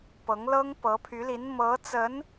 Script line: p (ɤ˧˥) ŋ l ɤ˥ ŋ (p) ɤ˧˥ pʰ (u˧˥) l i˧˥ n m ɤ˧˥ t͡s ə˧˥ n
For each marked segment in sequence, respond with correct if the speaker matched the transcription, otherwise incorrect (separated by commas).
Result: correct, correct, incorrect